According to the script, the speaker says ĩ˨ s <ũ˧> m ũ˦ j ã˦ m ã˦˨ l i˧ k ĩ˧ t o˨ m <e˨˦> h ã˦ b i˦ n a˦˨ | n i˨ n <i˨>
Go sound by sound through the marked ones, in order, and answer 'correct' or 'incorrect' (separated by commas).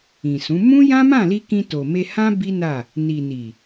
incorrect, incorrect, correct